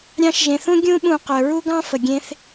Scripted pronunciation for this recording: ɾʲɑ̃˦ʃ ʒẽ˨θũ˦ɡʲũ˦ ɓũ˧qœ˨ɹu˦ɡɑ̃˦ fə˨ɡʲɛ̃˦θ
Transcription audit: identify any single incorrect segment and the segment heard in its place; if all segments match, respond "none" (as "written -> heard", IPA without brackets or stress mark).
ɛ̃˦ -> ẽ˦